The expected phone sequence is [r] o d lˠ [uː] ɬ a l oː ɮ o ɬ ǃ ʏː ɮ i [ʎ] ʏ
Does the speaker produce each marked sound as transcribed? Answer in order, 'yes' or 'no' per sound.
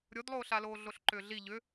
no, no, yes

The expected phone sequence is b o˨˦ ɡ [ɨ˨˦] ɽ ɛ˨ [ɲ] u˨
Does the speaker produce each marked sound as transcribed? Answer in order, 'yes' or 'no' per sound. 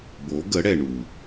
no, no

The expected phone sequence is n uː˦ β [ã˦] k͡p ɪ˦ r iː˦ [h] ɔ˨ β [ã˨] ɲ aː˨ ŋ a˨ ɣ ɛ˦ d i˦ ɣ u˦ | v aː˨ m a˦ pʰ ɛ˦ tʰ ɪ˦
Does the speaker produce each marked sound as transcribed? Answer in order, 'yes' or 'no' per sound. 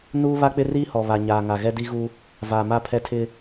no, yes, no

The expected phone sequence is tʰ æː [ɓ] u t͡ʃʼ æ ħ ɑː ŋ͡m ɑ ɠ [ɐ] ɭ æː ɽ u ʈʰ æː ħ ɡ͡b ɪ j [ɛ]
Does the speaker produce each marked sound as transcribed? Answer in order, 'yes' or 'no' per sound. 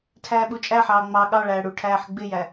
yes, no, no

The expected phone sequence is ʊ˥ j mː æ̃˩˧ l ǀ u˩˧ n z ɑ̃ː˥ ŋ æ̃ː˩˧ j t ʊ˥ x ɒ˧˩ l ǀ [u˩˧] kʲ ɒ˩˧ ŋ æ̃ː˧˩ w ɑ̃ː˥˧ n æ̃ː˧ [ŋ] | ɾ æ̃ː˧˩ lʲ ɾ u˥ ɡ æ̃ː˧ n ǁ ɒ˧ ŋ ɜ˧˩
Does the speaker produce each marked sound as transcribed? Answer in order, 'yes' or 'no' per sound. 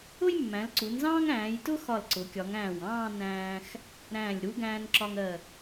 no, no

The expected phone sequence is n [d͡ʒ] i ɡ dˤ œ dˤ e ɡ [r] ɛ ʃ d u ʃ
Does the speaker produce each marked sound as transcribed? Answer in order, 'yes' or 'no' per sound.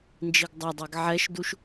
yes, no

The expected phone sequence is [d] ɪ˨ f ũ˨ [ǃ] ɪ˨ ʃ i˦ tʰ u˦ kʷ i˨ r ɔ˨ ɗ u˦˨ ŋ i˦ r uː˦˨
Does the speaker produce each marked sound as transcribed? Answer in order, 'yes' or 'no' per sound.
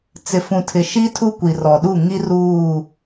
no, no

